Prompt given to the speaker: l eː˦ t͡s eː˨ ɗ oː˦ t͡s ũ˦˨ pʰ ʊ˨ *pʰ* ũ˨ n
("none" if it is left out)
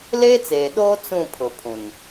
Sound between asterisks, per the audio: pʰ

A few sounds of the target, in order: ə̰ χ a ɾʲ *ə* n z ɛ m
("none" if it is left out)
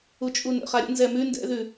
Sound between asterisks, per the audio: ə̰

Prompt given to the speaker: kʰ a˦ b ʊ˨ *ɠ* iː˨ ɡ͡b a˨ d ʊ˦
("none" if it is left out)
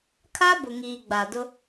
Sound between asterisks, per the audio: ŋ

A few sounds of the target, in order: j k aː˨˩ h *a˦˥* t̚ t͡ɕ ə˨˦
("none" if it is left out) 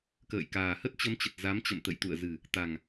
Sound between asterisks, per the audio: ə˦˥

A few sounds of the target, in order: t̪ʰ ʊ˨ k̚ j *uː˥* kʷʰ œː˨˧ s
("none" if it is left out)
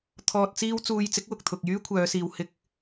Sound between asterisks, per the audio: yː˥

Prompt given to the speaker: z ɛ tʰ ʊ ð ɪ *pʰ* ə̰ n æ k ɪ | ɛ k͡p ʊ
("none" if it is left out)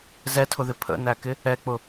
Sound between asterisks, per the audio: pʰ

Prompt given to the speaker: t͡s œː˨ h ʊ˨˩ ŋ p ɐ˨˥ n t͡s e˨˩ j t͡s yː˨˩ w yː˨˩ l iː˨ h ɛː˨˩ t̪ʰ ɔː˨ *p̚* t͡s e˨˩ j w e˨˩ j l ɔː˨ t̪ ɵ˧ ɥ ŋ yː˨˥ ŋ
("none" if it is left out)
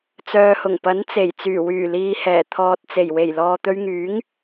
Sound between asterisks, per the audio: t̚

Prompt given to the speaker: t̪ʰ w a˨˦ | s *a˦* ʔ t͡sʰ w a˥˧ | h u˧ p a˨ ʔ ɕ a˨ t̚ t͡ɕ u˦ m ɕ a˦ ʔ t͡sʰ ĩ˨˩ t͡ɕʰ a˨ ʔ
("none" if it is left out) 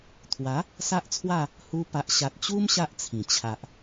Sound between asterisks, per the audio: a˦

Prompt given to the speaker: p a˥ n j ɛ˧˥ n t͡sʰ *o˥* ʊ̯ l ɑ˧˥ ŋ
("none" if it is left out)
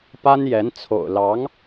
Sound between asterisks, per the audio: o̰˨˩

